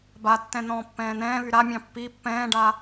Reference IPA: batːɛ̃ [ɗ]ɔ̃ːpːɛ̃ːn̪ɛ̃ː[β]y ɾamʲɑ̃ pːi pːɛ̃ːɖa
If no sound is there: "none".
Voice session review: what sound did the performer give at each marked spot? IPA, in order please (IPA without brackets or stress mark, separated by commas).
n̪, β